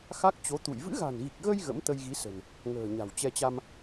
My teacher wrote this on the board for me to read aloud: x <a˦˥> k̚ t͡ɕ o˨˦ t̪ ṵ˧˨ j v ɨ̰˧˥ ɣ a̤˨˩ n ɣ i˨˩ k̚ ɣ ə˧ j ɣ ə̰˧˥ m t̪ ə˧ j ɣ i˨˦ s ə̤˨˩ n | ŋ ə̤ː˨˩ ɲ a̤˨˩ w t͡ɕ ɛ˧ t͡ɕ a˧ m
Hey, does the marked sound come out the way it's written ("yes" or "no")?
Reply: yes